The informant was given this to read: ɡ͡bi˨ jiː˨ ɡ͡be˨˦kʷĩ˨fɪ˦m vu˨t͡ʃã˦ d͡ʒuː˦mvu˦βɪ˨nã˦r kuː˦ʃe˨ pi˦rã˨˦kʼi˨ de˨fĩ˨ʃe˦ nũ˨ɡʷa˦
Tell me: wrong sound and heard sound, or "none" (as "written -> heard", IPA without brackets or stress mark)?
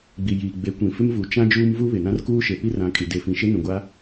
none